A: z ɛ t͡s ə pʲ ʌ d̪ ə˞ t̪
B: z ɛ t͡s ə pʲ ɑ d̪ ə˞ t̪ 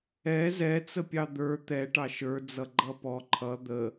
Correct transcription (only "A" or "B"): B